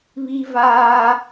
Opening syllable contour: high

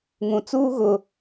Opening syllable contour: low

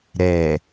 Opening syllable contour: low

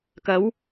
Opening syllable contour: rising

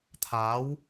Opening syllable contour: rising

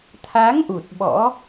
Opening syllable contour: rising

